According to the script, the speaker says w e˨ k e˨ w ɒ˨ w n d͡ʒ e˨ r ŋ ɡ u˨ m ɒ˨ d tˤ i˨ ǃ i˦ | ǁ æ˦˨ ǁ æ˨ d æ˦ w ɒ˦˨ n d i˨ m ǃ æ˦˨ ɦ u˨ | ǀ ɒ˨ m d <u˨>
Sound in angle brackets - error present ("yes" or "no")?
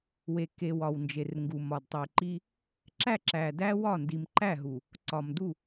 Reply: yes